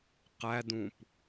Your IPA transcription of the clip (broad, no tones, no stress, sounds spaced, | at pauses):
q æ d ũ p